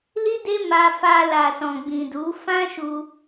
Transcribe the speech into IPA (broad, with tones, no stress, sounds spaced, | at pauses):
l i˦ d e˦ m a˧ f a˧ l a˨ s ɔ̃˨ ɡ͡b ĩ˨ d u˨˦ f ã˦ ʃ u˧